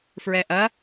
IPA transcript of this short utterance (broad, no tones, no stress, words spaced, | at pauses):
fɹɛʔɐ